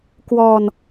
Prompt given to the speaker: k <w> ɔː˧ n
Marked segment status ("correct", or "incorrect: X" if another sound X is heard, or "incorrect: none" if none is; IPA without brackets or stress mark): correct